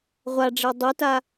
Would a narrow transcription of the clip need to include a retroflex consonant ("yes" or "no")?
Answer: yes